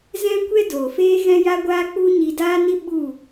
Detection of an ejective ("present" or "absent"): absent